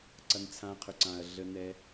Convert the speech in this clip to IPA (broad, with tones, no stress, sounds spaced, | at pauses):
ǀ ɐ˧ n t͡sʰ ã˧ qʰ ʏ˨ ǀ ã˨ ɐ̯ ɮ ə˧ n ɛ˧